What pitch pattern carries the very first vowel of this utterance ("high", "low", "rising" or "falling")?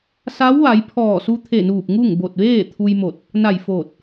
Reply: rising